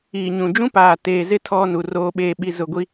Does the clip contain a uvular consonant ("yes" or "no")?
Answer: no